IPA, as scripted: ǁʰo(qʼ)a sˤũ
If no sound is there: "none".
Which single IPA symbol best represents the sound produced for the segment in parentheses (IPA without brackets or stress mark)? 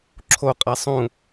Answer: qʼ